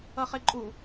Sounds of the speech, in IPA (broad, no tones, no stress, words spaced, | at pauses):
ʌχeǃʼu